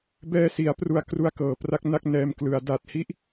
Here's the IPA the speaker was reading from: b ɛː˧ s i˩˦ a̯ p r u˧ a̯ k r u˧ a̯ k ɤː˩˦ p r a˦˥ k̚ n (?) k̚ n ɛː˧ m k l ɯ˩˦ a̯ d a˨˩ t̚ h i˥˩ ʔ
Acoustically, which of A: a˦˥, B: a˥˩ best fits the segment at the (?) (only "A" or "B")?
B